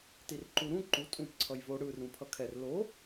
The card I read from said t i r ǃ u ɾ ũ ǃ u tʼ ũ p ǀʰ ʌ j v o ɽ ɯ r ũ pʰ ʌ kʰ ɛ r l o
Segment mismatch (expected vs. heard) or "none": none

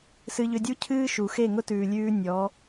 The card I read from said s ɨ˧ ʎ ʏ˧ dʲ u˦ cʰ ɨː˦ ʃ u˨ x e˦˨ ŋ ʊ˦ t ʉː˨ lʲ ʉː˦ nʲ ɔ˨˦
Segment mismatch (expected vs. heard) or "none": none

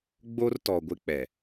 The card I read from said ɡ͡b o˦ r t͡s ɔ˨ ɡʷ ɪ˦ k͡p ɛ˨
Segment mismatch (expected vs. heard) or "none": t͡s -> t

